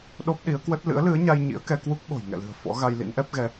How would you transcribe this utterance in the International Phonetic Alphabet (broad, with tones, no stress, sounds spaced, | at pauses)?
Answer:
ɗ o˦˥ p̚ ɗ i˨˦ ə̯ k w ə˦˥ t̚ l ɨ̰˧˥ ə̯ l ɨ˨˦ ə̯ ɲ a˧ j ɲ ḭ˧˥ ə̯ k ɛ˧ k w u˦˥ k̚ ɓ o̤˨˩ j ŋ ɛ̰˧˨ l ɨ̤˨˩ ə̯ f ɔ̰˧˥ ɣ a˧ j l ḭ˧˥ n ʔ ɛ˦˥ p̚ ɣ ɛ˧